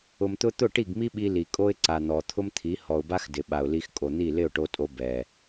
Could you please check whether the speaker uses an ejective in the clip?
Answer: yes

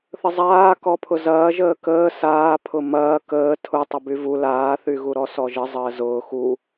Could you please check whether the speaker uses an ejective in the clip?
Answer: no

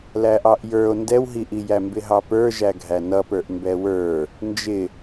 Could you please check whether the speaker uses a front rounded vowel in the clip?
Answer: no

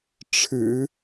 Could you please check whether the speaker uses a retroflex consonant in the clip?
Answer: yes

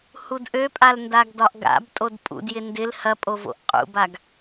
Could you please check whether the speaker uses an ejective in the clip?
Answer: yes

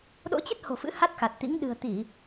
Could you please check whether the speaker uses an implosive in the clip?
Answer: yes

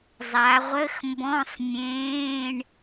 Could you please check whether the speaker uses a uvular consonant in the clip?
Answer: yes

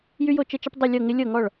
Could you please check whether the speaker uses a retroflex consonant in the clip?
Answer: yes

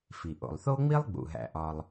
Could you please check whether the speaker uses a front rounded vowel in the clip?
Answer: no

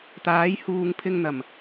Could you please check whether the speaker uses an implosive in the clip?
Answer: no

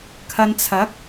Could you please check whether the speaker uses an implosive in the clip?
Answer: no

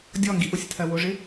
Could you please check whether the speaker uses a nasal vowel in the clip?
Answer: no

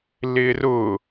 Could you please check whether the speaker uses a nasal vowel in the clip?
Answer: no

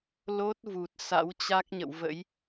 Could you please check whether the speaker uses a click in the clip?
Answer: no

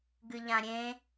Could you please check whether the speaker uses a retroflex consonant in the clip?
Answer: no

